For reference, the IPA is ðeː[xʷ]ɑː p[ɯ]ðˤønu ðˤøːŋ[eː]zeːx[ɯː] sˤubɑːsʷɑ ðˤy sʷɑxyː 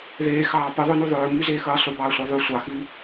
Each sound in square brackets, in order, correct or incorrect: incorrect, correct, incorrect, correct

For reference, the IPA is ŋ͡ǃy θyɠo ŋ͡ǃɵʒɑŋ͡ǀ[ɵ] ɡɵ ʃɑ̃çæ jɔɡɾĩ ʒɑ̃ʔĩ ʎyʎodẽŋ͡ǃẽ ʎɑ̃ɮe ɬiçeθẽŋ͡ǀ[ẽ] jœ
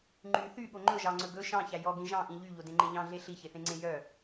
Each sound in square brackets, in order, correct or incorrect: correct, correct

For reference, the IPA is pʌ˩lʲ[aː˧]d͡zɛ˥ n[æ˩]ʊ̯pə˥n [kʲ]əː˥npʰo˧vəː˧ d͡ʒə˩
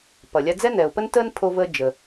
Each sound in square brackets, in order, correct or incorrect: incorrect, incorrect, incorrect

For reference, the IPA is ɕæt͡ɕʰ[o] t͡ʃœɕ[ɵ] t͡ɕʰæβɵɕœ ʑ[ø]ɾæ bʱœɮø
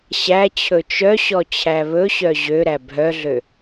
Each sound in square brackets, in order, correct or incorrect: incorrect, incorrect, correct

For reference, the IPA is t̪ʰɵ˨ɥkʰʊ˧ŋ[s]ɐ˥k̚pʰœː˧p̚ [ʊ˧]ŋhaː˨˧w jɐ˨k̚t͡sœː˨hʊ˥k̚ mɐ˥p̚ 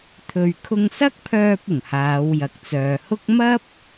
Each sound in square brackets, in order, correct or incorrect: correct, incorrect

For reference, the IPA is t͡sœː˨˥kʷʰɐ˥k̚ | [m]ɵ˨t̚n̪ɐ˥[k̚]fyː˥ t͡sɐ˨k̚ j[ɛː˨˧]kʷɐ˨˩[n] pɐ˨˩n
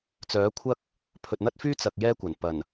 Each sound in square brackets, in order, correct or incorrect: incorrect, incorrect, incorrect, correct

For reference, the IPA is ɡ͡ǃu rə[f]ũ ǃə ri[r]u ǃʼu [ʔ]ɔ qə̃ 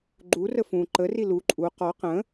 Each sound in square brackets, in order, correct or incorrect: correct, incorrect, incorrect

